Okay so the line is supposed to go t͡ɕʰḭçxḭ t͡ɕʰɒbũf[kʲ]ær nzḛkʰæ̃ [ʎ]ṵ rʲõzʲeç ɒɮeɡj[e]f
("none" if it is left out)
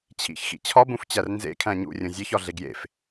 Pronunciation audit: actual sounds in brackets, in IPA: t͡ɕ, ɲ, ḛ

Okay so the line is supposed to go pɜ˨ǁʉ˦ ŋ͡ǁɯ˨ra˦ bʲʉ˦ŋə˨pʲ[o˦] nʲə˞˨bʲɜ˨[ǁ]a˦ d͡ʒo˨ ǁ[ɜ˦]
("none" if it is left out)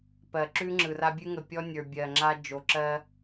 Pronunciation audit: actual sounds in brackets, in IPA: ɔ˦, ŋ͡ǁ, ɜ˦

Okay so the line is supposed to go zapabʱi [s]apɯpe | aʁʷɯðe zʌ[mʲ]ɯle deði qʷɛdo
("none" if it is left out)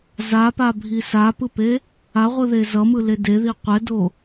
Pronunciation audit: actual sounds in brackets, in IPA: s, m

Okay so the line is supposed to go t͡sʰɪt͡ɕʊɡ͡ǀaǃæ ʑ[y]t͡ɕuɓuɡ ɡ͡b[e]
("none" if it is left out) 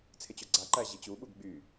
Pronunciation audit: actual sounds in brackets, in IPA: i, y

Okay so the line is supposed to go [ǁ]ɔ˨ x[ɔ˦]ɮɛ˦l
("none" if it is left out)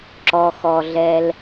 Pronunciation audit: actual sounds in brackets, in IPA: ǁ, ɔ˨

